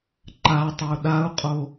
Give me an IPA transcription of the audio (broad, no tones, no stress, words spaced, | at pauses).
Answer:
ǃatˤo ɗau̯qʼo